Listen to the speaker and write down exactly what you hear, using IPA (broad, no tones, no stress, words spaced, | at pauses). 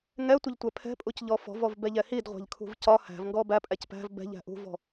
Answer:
ŋɛtʷɪʎtʷɛ pʰɛ̤pʼucʎɔ fɔ̤vɔvbɛʎɛ hidʁʷæ̤ʎkʰṳv cɒ hæ̤vŋɡɔ bæpʼæc pæ̤v bɛ̤ʎæ̤ ʔṳvɔ̤